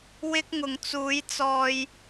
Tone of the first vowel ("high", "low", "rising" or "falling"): high